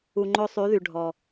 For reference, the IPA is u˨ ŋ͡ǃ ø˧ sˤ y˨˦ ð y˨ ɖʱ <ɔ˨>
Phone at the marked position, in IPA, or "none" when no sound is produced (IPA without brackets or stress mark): ɔ˨